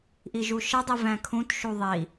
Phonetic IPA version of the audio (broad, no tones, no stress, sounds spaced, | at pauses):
ʔ i ʒ u ʃ ə dˤ i v æ̃ kʰ ũ t ʃ u ðˤ i